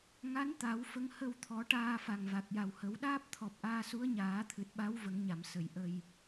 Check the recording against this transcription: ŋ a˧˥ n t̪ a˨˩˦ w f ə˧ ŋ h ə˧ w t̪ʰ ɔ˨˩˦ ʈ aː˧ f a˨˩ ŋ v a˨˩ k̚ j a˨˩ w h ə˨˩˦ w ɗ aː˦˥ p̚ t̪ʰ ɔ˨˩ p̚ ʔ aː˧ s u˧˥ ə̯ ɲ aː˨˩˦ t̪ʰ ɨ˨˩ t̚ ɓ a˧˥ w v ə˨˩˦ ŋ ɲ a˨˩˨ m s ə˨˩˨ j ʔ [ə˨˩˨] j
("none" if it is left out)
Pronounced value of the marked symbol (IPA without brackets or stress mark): ə˧